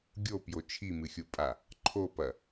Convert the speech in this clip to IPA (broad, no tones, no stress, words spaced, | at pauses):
ɡʲopjo t͡ʃʰimɨxʲupʼa | ǃʰopɐ